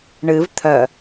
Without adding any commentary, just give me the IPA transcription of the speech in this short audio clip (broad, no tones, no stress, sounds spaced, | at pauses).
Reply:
ɳ ɨ v t̪ʰ œ